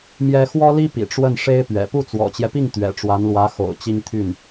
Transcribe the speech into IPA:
m j ɛ˥ x w ɔ˥ l i˥ p ḭ˨˩ ʈ͡ʂ w ə˥˩ n ʂ e˥ ɪ̯ p ɥ ɛ̰˨˩ p u˥˩ t͡s w ɔ̰˨˩ t͡ɕ j ɛ˦ p i˥˩ ŋ t̪ ɥ ɛ̰˨˩ ʈ͡ʂ w a˧˥ n l w ä˧˥ x o̰˨˩ ʊ̯ t͡ɕ i˥ ŋ t̪ʰ y˥˩ n

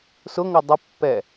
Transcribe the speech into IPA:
s ʊ ŋ ʊ dˤ ə pː ɛ

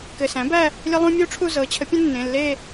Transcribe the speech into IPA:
k ɘ˩˧˩ s æ̃˩˥ b æ˥˧ | lʲ ə˦˥ lˠ ũ˦˥ mʲ u˦˥ ʈ͡ʂʰ u˥˧ z ɤ˩˥ t͡ɕʰ ə˩˥ pʲ ə̃˦˥ nː ẽ˩˧˩ lː e˥˧

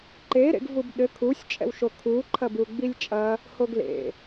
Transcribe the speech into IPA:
ǃ e ɾ ḛ ɡ v u b ɗ ɘ kʰ u sʲ t͡ʃʼ ɛ̰ w ʃ o kʰ u ǃʰ ɐ b u ɡ͡b i lʲ t͡ʃʼ ɐ | h o ɡ l ḛ

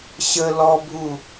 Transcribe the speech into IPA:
ɕ ə l ɔ bʱ u

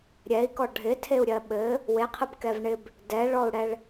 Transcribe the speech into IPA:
ɾʲ ɛ i̯ k ɔ ɖʱ ɪ tʰ e u̯ ɾʲ ɜ ɓ ɘ | w e qʰ ɘ b k ɛ v ɳ ɪ b | d ɛ ɭ ɔ u̯ ɽ ɛ ɭ

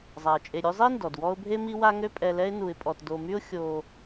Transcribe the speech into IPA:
zˤ a˩ ə̯ t͡ʃʼ e˨ ɾʲ ø˦ zˤ i˥ n d ɔ˩ d w ɔ˦ ʊ̯ bʱ e˥ m i˥ w a˥ ŋ ø˦ pʼ ɛ˨ l ɛ˦ ɪ̯ n u˨ ɪ̯ pʼ ɔ˨ t d o˨ m y˥ ʊ̯ xʲ o˨

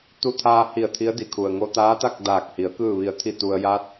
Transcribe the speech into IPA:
t̪ u˧ t̪ʰ aː˧ h i˧˩ ə̯ t̪ʰ i˧˥ ə̯ d i˩ kʰ u˩ ə̯ ŋ o˧ t̪ aː˧˥ t̪ a˥˨ k̚ d aː˧˩ k̚ h i˩˧ ə̯ k ɯː˧˩ ʋ i˩ ə̯ t̪ʰ i˧˩ t̪ u˩ ə̯ j a˧˥ t̚

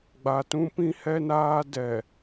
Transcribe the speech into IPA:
ɡ͡b a˨ t ũ˦ p ĩ˦ h ɛ˦ n aː˦ d ɛ˨

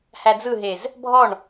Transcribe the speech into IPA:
h æ d͡z ɯ ɦ e z | bʱ ɔ ɳ

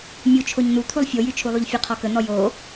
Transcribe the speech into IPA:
mʲ u t͡ʃʰ o ɲ n̪ u t̪ʰ u lˠ fʲ o j y t͡ʃʰ u lˠ u ʎ fʲ ə qʰ ɔ k ə n̪ ɔ j o

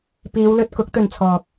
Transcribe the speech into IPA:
p iː˨˧ w l ɵ˧ t̚ k ʊ˨˥ k̚ t̪ ɵ˨ n t͡sʰ ɔː˨ k̚

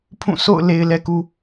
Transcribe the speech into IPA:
pʰ ũ˦˨ sʰ o̰˦˨ ʊ̯ l e˨ ɪ̯ l ɛ˨ k u˨

